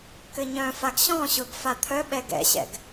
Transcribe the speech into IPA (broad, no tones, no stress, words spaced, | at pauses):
kɘɲœ̃faɡ ɕɔ̃ɕʊɡ fat̪ʰœɓɛ ɡɛ̰ɕɛ̰ɡ